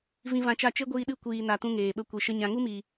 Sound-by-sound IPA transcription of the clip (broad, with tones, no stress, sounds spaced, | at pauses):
v ĩ˧ v ã˧ t͡ʃ a˦˨ t͡ʃ e˦ ɡʷ iː˧ ɗ ɨ˦˨ kʷ iː˨ n a˨ t ũ˦ ŋ eː˨ ɓ ə˦ kʷ i˨ ʃ ə˦ ɲ ã˨ ŋ u˦ m iː˨